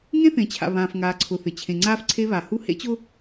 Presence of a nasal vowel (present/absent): present